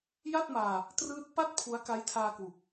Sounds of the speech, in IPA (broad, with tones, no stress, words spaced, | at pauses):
ja˥˩t̚maː˧ | trɯː˦˥t̚ pa˥˩t̚ pʰu˦˥a̯ka˦˥jtʰaː˧kwu˨˩k̚